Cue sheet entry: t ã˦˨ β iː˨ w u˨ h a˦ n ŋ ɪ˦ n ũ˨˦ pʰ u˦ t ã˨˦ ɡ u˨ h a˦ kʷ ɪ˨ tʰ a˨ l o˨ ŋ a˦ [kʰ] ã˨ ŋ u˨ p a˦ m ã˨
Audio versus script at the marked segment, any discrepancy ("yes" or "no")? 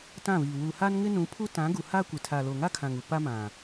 no